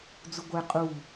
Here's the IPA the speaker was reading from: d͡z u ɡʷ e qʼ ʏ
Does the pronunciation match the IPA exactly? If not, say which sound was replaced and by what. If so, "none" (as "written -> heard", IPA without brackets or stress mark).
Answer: ʏ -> u